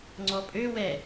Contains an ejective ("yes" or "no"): yes